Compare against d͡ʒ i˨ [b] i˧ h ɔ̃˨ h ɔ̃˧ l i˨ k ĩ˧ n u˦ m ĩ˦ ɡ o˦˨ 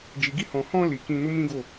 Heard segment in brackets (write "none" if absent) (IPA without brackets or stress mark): ɡ